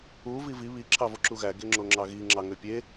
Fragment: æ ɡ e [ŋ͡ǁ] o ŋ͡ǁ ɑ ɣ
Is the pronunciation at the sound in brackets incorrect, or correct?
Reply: correct